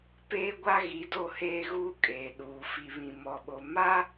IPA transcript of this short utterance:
p eː˦ ɡʷ a˦ ɣ i˨˦ d o˦˨ h eː˦ ɣ uː˦ kʼ eː˨ ɗ uː˨ f i˨ β ĩ˨ m ɔ˨ ɓ o˨ m a˦

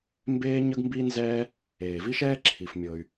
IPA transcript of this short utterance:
m b eː˥ ɲ ə˥ ɡ m b i˥ n z ɛː˥ | eː˩ v i˥ ʃ ɛː˥ ǁʰ i˩ f mʲ ɤ˩ y̯

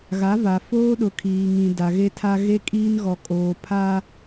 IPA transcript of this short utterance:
ɣ a˨˦ v a˨ f oː˦ ɗ ʊ˨ kʰ iː˨ ŋ ĩ˨ d a˨ ɣ e˦ tʰ a˦ ɣ e˦ kʼ iː˦ n ɣ ɔ˨ kʼ oː˨ pʰ a˦

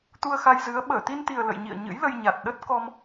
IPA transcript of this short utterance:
t̪ u˧ ə̯ x a˧ j z ɨ˨˦ ə̯ ɓ əː˧˩ t̪ i˧ n t̪ i˨˩ ə̯ l ə̰˧˨ j ɲ ḭ˧˨ ə̯ ɲ ɨ̰˧˥ j l ə˧ j ɲ a˨˩ t̚ ɗ ə˦˥ t̚ k ɔ˧ m

